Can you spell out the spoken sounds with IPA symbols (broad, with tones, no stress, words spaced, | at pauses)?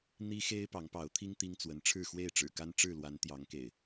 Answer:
n̪i˦xe˦ɪ̯ pɑ˨˦ŋpɑ˨˦ʊ̯t̪ʰi˦ŋ t̪i˦ŋt͡swə˨˦n ʈ͡ʂʰɻ̩˥˨xwe˥˨ɪ̯ʈ͡ʂɻ̩˨˩ ka˦nʈ͡ʂɻ̩˥˨lwa˨˦n t̪jɑ˨˦ŋkḛ˨˩ɪ̯